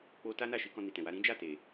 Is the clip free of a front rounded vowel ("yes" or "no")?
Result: yes